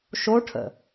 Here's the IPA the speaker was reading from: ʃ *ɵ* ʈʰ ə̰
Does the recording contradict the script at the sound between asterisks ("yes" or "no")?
yes